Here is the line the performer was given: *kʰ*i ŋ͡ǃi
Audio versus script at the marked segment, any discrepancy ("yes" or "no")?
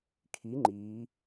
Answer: no